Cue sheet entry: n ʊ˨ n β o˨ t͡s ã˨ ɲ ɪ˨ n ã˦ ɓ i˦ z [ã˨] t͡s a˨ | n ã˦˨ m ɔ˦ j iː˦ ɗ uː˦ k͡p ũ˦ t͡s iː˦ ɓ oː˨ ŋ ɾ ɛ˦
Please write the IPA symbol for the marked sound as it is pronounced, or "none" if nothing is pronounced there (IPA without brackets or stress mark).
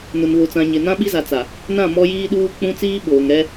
a˨